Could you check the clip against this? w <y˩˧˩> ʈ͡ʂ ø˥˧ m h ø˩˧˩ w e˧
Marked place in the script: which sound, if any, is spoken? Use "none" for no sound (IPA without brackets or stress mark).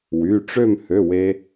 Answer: y˩˧˩